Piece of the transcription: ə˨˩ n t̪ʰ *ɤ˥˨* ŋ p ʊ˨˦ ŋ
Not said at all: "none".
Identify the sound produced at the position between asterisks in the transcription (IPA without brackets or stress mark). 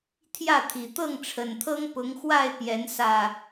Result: ɤ˦